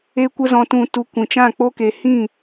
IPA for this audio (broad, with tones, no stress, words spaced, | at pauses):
e˦kʷə˦zɔ̃˧tũ˧ tu˧ kʷĩ˨t͡ʃã˦˨k͡po˦ke˧ hĩ˦˨